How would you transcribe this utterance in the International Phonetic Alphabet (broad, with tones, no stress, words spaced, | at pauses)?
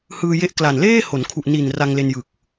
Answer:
hɯː˧je˦˥ʔ kla˨˩nleː˥˩ho˩˦nkʰu˨˩ʔ ni˨˩n ra˧ŋle˧njɯ˨˩k̚